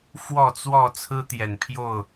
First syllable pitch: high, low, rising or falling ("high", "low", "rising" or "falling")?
falling